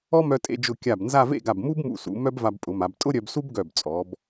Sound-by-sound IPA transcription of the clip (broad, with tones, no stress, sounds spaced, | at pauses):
ɔ˥ m œ˧ tʼ ḛ˧ d͡ʒ ʊ˧˩ kʲ a˧˩ b n z a˥˧ v ḛ˥˧ ɡ a˧˩ b m u˥ b m ṵ˧˩ s ṵ˩˧ m œ˥ b v a˧ b pʼ ʊ˩˧ m a˩˧ b tʼ ʊ˥ ɾʲ œ˧ b s u˥ b ɡ œ˧˩ b t͡sʼ ɔ˩˧ b